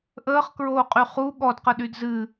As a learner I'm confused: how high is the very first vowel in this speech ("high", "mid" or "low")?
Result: mid